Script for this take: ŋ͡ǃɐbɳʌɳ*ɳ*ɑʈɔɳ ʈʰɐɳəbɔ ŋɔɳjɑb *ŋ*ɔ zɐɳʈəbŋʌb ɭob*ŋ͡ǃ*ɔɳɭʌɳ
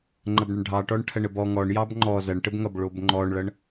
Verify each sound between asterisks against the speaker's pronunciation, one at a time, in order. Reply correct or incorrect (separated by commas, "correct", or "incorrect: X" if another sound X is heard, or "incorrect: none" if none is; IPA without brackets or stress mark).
incorrect: ɖʱ, incorrect: ŋ͡ǃ, correct